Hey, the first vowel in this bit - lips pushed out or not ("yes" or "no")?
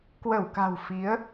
no